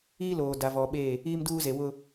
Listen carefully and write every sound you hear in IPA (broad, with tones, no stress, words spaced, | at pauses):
iː˦loː˨ da˨ vɔ˨ɓe˦˨ | iː˦mduː˦ze˨ wʊ˦